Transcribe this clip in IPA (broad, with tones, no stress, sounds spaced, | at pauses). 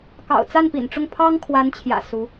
k ɑ̰˨˩ ʊ̯ t͡s a˥˩ n p ḭ˨˩ n ʈ͡ʂ ʊ˥˩ ŋ pʰ ɑ˥ ŋ kʰ w a˧˥ n t͡ɕʰ j ä̰˨˩ s u˧˥